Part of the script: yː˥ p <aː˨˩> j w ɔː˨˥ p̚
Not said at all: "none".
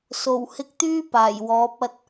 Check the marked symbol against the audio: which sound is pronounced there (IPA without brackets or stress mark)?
aː˨˩